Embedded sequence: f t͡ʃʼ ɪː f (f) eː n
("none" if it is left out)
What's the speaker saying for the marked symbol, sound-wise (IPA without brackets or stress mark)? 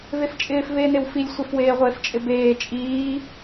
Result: v